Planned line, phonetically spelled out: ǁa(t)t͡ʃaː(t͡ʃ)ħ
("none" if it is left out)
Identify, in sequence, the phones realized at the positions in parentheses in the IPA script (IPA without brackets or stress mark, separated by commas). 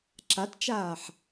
t, none